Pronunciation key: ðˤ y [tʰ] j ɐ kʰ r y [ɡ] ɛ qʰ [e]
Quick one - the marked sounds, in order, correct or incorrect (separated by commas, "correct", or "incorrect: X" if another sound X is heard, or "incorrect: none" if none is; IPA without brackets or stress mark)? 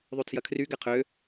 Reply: correct, correct, incorrect: ø